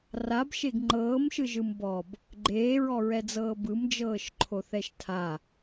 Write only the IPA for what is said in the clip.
rabʃeɡ ŋ͡ǃɤːmʃɯʒɯm bɔb | ɡ͡ǃeːɹɔɹɛd͡zɤː bɯmd͡ʒɤːʃ ǃʰoθɛʃtʰa

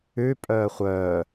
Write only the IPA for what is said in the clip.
ʉ pʼœːχʷœː

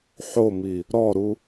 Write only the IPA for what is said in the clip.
ħomi | ɾɔɾu

